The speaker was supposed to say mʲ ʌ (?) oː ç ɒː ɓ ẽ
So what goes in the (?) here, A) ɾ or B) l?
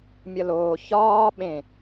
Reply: B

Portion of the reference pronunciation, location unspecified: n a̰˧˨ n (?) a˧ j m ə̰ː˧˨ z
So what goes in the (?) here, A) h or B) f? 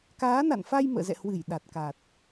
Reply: B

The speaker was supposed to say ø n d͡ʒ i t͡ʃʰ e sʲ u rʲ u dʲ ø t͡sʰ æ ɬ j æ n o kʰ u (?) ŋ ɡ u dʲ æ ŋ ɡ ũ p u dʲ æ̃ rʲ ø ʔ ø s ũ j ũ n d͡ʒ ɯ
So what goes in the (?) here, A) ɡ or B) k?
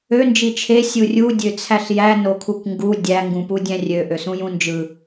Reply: B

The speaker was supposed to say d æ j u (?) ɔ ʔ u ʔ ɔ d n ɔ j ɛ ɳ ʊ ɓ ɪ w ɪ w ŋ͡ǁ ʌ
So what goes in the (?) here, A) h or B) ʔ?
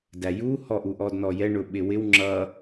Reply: A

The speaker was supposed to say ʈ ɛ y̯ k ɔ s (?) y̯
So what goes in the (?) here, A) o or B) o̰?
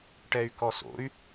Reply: B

